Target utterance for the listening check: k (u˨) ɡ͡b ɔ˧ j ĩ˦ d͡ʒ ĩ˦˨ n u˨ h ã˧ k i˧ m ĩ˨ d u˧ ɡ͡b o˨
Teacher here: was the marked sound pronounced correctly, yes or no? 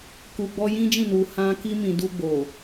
yes